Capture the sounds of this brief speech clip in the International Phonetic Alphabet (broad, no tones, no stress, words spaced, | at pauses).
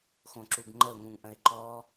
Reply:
xõǁuɡŋ͡ǃəʊ̯ ŋũŋʔə̃ɪ̯ǃɔ